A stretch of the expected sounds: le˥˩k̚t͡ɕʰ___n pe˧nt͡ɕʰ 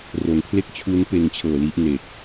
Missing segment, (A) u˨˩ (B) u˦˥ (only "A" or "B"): B